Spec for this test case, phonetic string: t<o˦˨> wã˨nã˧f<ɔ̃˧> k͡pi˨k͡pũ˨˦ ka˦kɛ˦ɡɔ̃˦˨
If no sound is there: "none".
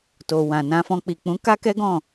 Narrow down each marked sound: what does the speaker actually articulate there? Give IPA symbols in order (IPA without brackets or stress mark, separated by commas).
o˨, ɔ̃˧